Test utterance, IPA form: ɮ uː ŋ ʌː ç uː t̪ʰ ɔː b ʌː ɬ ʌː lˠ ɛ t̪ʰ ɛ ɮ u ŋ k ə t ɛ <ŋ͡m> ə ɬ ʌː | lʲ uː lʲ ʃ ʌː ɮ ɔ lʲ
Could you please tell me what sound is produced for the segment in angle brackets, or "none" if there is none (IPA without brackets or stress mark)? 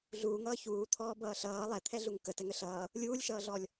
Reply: ŋ